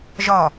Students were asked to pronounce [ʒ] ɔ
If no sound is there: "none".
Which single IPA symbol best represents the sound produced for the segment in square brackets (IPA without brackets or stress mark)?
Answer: ʒ